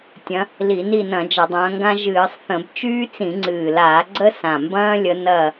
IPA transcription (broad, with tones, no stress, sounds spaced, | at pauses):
tʲ ɐ̃˨˦ | l i˧˩˧ n i˦˨ n ɐ̃˧˩˧ d͡ʒ ɐ˧˩˧ dˤ ɐ̃ː˨˦ ŋ ɡ ã˦ ʒ ɨː˧˩˧ sˤ θ ə̃˧˩˧ b t͡ʃ yː˦ t͡s ĩ˧˩˧ ŋ͡ǀ ɨː˨˩ l aː˧˩˧ ɡ͡ǀ ə˦ s ã˨˩ m b ɐ̃ː˦ lʲ ə˨˦ n ɐ˦˨